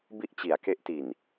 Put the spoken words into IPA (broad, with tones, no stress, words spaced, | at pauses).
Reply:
bi˥˩ʔt͡ɕi˩˦a̯ke˦˥ʔti˨˩n